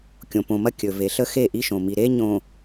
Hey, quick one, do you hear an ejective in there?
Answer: no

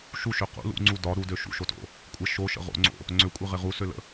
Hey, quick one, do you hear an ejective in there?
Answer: yes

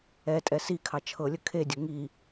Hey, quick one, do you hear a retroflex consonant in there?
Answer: no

